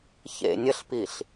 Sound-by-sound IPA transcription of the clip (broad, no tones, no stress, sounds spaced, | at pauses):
ç ḛ nʲ ə ɬ p i ɬ